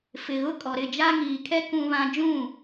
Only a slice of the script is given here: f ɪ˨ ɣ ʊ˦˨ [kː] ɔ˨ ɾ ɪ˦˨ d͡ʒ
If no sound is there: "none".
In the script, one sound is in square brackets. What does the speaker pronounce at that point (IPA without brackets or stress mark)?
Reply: kʼ